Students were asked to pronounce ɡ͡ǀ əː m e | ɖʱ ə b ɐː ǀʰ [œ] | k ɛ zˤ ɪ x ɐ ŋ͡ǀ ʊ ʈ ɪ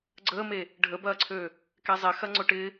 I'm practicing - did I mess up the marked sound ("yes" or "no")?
yes